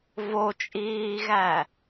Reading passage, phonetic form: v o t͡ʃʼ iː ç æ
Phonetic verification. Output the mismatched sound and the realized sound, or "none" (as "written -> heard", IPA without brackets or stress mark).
ç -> ɣ